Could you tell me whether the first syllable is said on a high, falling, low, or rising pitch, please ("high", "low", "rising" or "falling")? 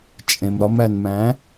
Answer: low